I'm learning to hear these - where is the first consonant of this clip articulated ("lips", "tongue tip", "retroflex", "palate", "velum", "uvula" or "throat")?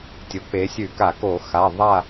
tongue tip